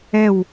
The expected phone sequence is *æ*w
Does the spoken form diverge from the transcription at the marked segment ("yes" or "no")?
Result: yes